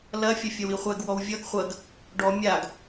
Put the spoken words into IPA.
lɐ fʲɐfʲɐwiχʷɛɡ wɔwvʲʌɡ χʷɐɡ | ɖɔ mʲaɡ

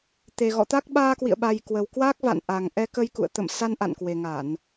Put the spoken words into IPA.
t̪e˨˩ɣɔ̰˧˨t̪a˦˥k̚ ɓaː˧kwḭ˧˨ə̯ɓa˨˩j kwə˨˩wkwa˦˥k̚va̰˧˨n ʔa˨˩ŋ ʔɛ˧kə˧jkṵ˧˨ə̯ t̪ə̰˧˨m sa˧nʔa̰˧˨nkwe˨˩ ŋa˧˩˨n

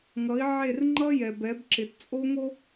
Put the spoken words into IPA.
ŋʌ˨˦i̯ʕe˦˨r ŋ͡ǃʌ˦jɛ˨b ɛ˨˦bǁɪ˨tt͡sʼo˦ŋo˦

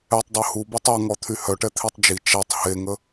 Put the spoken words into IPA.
ɛtˤdˤo hu bɔtˤaŋɔ t̪ʰyhœʈɛ t̪ʰitˤd͡ʒi t͡ʃatˤ heŋə

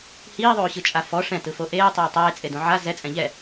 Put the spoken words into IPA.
hiːðˤoːɕɯt͡ʃʼa fɔ ʂɛ̃tɯfo ʔeːtˤeː tˤeːt͡sʼedõ ʕa zɛt͡sʼɛ̃ ʎɛ

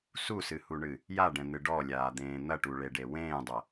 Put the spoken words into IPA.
susɨhuɳɨ | jaɖɛ̃n̪ɨ ɖɔlʲaːd̪ẽː n̪ɐʈuɭeɖe wẽːdˤɐ

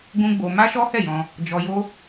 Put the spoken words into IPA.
ɡũ˦ɡ͡bo˧ ma˦ʃɔ˦ hɛ˦˨jɔ̃˧ | d͡ʒɔ˧jo˦

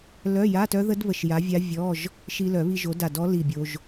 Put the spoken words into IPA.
lœ˧˥˧ja˧˥˧tœ˦˥ðə˦˥d βə˧ʃja˨˥vʲa˦˥ vʲɔ˧˥˧ʒ | ʃi˧lœ˨˩˦βi˧ ʒo˨˥da˧˩dɔ˦˥li˧˩ bʲo˧ʒ

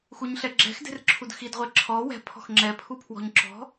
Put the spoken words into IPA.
xuɲɬɛɡ͡ǁɛ̤x de̤rǁʰudxid ʁʷeǁʰɔ wɛ̤ pʰɔ̤xŋ͡ǁɛ pʰupʰwɔ̤ɲǁɔ̤

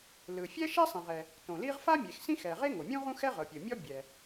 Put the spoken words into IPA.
lɯ˩ fʲɛ˥ʃɛ˥sˤĩ˩ʁɛ˩ | tõ˩li˥ʁ fa˥mʲe˩x sĩ˥xɛ˩ʁe˥ ŋo˩mʲũ˥ ʁũ˥xɛ˥ʁɤ˩ pʲɯ˩ mʲɔ˥bʲɛ˩

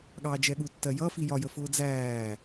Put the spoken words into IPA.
ɠɑːd͡ʒɛɠu tːɜjʌ fijɒjə fʊːd͡zæː

